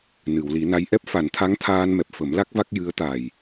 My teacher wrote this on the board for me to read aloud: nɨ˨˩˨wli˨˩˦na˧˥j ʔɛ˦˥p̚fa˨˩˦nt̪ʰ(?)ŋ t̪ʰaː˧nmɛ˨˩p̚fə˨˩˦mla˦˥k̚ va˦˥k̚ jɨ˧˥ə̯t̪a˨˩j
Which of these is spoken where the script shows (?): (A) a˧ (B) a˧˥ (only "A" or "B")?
B